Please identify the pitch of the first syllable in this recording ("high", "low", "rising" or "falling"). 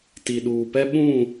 low